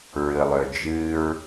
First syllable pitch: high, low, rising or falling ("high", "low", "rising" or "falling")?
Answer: low